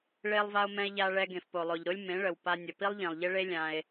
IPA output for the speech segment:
ɭ e˧ lˠ v a˧ o̯ m ɛ̃˧ e̯ ʎ a˧ ɭ ɛ˧ ɡ ẽ˨ f p o˨ lˠ o˨ ʎ ɾ o˦ lʲ m ẽ˨˦ ɭ ə˨ w p a˧ nʲ ə˨ p i˦ lˠ ʎ ĩ˨ lˠ ʎ ɪ˦ ɭ e˦ lʲ ã˧ e̯

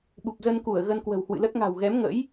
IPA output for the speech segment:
ɓ u˨˩ p̚ z ə˧ n k u˧˩ ə̯ ɣ ə˧ n k w ə̤˨˩ w h w ɨ̰˧˨ l ə˦˥ t̚ ŋ a̤˨˩ w ɣ ɛ˨˦ m ŋ ə̰˧˥ j

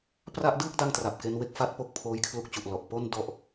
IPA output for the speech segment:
p r a˥˩ ʔ d ɯː˥˩ k̚ d a˥˩ ŋ t r a˨˩ p̚ k e˦˥ n w e˥˩ k̚ f a˦˥ t̚ p o˥˩ k̚ pʰ oː˦˥ j kʰ l u˦˥ k̚ t͡ɕ u˨˩ ʔ l ɔ˨˩ ʔ p o˥˩ n d ɔ˥˩ ʔ

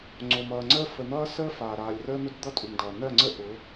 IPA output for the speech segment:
ŋ͡ǀ o˨ m ʌː˨ ŋ͡ǀ əː˦ f ə˨ n̪ ʌː˦ s əː˦ f aː˨ ɾ aː˨ lʲ r əː˦ n̪ ʊ˦ d d̪ ʌ˦ tʼ u˨ ŋ d ʌː˨ n ɜ˦˨ ŋ͡ǀ ə˦ ʔ ʊ˨˦

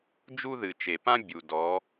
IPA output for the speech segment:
d͡ʒ u˧ ð ɨ˩ t͡ʃ e˩ p ã˧ bʲ u˩ d ɔ˩˥

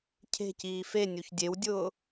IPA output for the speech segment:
cʰ e̤ c iː f e nʲ u ç dʲ e w dʲ ʊː

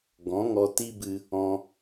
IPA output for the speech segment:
ɡ ɔ̃˨˦ ŋ ɔ˧ t i˦ b ɨ˧ | ɔ̃˦

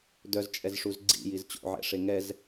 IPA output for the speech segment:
d œ z t͡ʃʼ ɛ z ʂ u z ɡ͡ǀ ḭ j i z t͡ɕ o̰ ʕ ɛ̰ ʂ e ŋ ɛ z

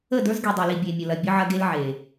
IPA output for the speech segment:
ə˦˨ d ə˞˦ z ɡ i˨ dˤ e˨ l i˨ bʲ e˨ mʲ ə˨ l ɐ˨ bʲ ə˦ ʕ ɐ˦ ɡ e˦ l ʕ e˨

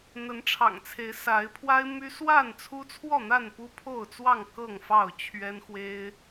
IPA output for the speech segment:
n̪ ə˨˦ n ʈ͡ʂʰ ɑ̰˨˩ ŋ t͡sʰ e˨˦ ɪ̯ s a˨˦ ɪ̯ pʰ w a˦ ɪ̯ m y˦ s w a˥˨ n t͡sʰ u˦ t͡sʰ w ɔ˥˨ n̪ a˥˨ n p u˦ pʰ o˥˨ ʊ̯ t͡s w ɑ˥˨ ŋ k ɤ˥˨ ŋ f ɑ˥˨ ʊ̯ t͡ɕʰ ɥ ɛ˦ n x w e˦ ɪ̯

